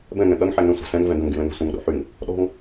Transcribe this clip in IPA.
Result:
b ɛ̃ ŋ ɛ̃ ɠ ɐ ŋ ħ ɛ ŋ ɛ̃ sʷ ɛ̤ s ɛ̃ ŋ v ɛ̃ ɡ ɐ̃ ŋ ɡ y l ɛ̃ ŋ ɛ̤ sʷ ɐ̃ ŋ ɗ o̰ ħ y ŋ | ɗ ɔ̤ ŋ

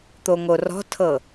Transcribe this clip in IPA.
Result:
t̪ o ŋ o r ɔ̤ tʰ ɤ

